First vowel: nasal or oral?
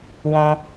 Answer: nasal